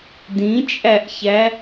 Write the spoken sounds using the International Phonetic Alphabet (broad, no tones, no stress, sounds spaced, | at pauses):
d ĩ t͡ʃʼ æ ʔ ç æ